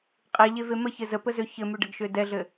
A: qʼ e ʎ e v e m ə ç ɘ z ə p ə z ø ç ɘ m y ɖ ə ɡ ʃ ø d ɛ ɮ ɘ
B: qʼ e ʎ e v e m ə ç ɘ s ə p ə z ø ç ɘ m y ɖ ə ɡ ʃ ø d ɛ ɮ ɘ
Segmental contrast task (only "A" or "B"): A